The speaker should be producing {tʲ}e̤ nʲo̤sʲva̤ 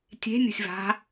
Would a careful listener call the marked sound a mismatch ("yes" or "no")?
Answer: no